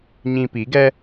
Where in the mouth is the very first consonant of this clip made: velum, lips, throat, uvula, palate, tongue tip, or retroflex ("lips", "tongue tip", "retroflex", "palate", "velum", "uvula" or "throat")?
palate